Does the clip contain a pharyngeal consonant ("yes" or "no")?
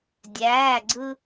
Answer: no